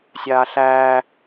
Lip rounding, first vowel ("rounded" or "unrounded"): unrounded